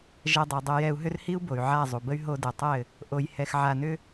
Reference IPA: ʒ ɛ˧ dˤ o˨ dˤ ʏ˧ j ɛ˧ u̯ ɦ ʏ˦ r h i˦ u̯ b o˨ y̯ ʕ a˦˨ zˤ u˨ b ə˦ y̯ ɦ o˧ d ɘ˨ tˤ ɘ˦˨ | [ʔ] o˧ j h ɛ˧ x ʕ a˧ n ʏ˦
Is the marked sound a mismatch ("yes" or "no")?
no